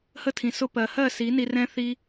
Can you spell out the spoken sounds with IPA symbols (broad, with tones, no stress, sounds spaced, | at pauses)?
h ə˦ tʰ ĩ˨ s ʊ˧ p ɜ˨ h ɜ˦˨ s i˨˦ n i˧ r ɛ̃˦ θ i˧